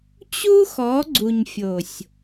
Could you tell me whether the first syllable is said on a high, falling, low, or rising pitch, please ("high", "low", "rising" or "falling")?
high